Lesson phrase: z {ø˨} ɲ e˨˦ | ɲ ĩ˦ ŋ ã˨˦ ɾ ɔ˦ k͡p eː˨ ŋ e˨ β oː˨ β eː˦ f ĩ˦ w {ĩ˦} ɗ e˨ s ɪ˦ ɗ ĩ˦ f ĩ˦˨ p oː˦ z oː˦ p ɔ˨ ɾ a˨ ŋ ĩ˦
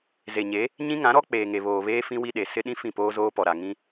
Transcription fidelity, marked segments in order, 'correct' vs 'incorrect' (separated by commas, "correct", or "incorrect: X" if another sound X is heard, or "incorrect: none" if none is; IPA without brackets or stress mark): incorrect: e˨, incorrect: i˦